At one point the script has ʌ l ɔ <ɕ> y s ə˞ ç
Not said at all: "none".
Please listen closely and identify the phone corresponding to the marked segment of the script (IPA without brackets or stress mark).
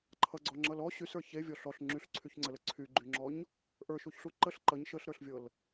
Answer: ɕ